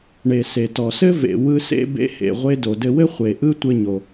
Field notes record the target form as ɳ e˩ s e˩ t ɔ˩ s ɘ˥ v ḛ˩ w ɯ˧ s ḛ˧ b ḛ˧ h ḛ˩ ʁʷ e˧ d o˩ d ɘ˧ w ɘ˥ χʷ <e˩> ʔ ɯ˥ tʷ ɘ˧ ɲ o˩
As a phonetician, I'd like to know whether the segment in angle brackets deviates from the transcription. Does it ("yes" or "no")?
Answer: no